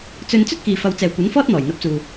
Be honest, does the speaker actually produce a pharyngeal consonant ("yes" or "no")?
no